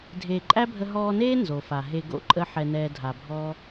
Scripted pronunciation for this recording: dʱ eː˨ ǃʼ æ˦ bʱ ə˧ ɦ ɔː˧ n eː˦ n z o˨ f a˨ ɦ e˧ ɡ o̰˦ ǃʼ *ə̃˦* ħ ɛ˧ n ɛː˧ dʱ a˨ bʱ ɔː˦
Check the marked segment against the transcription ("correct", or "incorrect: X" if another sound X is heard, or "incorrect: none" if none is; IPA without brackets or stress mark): incorrect: ə˦